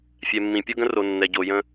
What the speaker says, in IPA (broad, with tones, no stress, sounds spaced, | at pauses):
fʲ ɛ˨ mː ĩ˨ pʲ o˦ ɡ ə̃˦ r o˨ nː ɛ˨ ɟ o˨ j ə̃˦